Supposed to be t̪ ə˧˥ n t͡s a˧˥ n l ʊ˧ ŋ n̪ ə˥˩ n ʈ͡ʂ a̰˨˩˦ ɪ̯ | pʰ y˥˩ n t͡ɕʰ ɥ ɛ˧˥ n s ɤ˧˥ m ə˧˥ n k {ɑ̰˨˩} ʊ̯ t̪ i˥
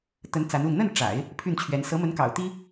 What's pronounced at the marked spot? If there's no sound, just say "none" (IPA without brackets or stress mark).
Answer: ɑ̰˨˩